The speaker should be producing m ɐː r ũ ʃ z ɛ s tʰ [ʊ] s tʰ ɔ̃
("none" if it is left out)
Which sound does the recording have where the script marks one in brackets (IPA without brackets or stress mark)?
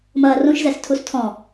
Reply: u